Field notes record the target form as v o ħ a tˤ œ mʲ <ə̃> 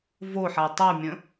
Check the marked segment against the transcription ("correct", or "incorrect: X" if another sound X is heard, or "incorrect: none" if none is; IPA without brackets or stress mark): correct